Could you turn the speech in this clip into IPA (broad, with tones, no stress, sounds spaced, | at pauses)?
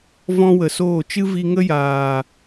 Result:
v ɔ̃˦ w ə˨ s oː˦˨ t͡ʃ ɨ˦ v i˧ ŋ ə˦ j aː˨